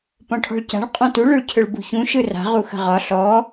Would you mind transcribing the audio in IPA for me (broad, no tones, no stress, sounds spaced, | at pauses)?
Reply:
p ɔ̃ ʈʰ ɔ̤ ɭ c a̤ ɭ qʼ ɔ̃ t u ɭ ɵ ɭ cʰ ɵ ɭ b ṳ ç ũ ʃ ɯ r a̤ ʁ u x ə̤ ʁ ɒ ɬ ɔ